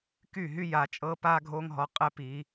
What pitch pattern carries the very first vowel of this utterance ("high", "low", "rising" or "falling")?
falling